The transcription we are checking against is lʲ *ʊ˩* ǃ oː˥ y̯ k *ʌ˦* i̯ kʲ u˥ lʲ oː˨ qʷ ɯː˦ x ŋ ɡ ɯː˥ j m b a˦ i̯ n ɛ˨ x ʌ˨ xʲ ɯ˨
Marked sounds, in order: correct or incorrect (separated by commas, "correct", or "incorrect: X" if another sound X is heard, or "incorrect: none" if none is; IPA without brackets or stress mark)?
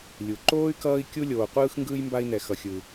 incorrect: u˩, incorrect: ʌː˦